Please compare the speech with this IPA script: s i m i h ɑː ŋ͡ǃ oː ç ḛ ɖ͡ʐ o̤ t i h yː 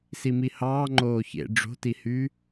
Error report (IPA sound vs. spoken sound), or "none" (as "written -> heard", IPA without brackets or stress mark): none